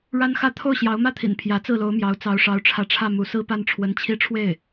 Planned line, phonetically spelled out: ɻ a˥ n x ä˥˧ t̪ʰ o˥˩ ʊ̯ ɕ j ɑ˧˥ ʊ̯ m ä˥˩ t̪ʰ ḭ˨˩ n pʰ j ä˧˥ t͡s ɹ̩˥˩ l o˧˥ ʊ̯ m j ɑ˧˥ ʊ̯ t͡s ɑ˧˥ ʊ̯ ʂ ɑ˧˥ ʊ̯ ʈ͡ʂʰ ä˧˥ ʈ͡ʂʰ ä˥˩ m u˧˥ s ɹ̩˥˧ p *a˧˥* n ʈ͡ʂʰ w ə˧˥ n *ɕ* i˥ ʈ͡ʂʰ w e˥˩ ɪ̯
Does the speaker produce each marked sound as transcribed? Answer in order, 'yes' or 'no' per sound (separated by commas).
no, no